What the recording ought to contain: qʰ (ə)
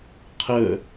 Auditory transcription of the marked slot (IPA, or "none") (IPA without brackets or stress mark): ə